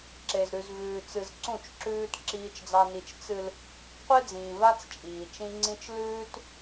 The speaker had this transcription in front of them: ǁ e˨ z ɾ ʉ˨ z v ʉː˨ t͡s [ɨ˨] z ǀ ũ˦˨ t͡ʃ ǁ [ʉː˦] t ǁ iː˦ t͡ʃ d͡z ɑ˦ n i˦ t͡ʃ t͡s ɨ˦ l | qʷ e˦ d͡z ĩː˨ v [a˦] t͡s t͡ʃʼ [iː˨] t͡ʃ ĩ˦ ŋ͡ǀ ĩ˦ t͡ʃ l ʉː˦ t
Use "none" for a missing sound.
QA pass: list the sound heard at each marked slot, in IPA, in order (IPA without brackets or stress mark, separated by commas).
ɨ˨, ʉː˦, a˦, iː˨